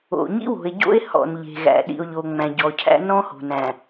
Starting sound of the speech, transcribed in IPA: o̰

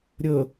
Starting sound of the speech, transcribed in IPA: ɾʲ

